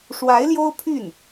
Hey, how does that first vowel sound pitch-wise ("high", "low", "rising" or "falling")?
rising